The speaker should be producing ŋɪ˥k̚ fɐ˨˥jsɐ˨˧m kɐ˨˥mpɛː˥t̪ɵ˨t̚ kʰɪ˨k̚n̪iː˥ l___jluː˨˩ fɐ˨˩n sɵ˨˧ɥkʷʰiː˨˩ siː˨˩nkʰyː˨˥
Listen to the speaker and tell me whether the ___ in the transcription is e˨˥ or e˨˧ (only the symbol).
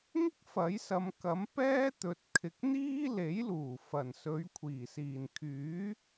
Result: e˨˥